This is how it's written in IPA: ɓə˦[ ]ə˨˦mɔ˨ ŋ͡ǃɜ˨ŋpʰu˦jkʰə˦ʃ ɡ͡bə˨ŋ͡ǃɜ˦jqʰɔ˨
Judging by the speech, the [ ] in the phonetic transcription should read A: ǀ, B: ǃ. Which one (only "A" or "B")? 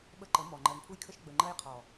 B